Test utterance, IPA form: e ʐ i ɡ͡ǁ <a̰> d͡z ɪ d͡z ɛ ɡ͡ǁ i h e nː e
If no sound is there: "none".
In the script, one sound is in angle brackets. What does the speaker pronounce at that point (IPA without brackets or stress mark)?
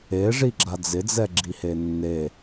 a